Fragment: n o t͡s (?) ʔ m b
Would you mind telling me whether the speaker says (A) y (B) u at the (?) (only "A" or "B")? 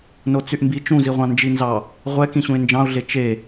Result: A